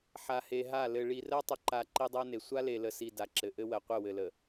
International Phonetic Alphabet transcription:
ħ a˨ h e˨ ɦ a˦˨ l ɘ˨ ɭ i˨ r ɜ˦ tˤ ə˨ ǃ a˨ ǃ i˦ dˤ ɜ˦ n e˨ sʷ a˦ l e˨ l ə˨ s i˨ d a˨ ǁ ɘ˨ ʔ ɘ˦ w ɜ˨ qʷ ɘ˦˨ w ɘ˨ l ə˨

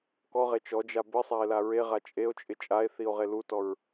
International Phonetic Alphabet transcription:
k ɔ ʁ e t͡ʃ ɔ d͡ʒ a b ɪ sˤ a e̯ l a ɹ e ʁ a t͡ʃʼ e o̯ t͡ʃʼ ɪ t͡ʃʼ a e̯ θ i o̯ ʁ e l u t ɔ ɹ

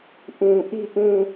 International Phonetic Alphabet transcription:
ʔ ũ˨ ʔ i˦˨ ʔ ũ˦˨

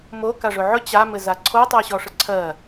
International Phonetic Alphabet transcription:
m o k a ʐ ɵ ʕ ɵ t͡ɕ a m ɘ z a ǀʰ o tˤ ɜ ɕ ɔ ʂ ɘ ǀʰ ɜ

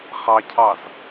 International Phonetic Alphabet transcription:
χ ɑ cʰ ɑ z

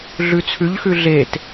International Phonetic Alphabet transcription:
ɮ ʉ t͡sʰ ʉ ʎ x ʉ ɮ e t

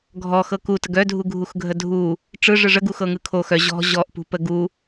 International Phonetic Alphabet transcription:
ɡʱ ɔ x ɤ k u t ə ɡ œ dʱ u ɡʱ u x ɡʱ ə dʱ u | ʈ͡ʂ ɯ ʐ ɯ ʐ ə ɡ u x ɤ ŋ ɯ kʰ o x œ ʑ ɔ̤ ʑ ɔ ʔ p ṳ p ə ɡ u

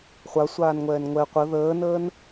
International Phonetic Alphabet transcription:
χʷ a sʷ aː n ŋʷ ɛː n ŋʷ ɛ qʷ ə ð əː n əː n

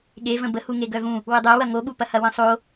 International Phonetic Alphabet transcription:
ɠ e v ə̃ b ə h u ŋ e ɡ œ v ũ | w ɵ dˤ œ w ɐ ŋ o ɠ u p ɐ h ɐ w ə̃ sˤ o

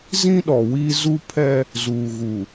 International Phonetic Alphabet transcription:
z ĩ˦ ɗ ɔ˨ w iː˦ z u˦ pʰ ɛ˦ | z uː˨ ɣ u˨

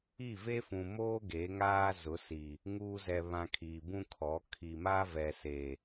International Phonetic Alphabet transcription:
i˦˨ v e˦ f ũ˨ m oː˦ ɡ eː˨˦ ŋ aː˦ z ʊ˨˦ s i˨ | ŋ uː˦ z ɛ˨ β ã˨ kʰ i˨ b ũ˦ kʰ ɔ˨˦ kʰ i˨ m aː˦ v ɛ˨ s e˨

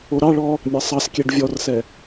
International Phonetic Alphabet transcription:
o ɾ ɑ ɭ ɔ | mʲ ɑ sˤ ɑ s kʲ ɛ ɖ vʲ ɔ r s ɛ

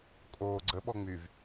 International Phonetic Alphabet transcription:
kʼ oː ɡ͡ǀ ə ɓ ɔ ŋ͡m y v

